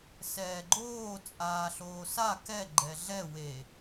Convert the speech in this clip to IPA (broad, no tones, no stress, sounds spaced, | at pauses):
s ɛː ɡ͡ǃ oː t͡sʼ aː ɬ oː s a k ɛ ɡ͡ǃ ɛ ɮ ɛ w e